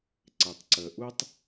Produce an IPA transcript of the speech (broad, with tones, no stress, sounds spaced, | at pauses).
ǀ ɪ˩ tˤ ǀ ə˩ ʔ u˧ tˤ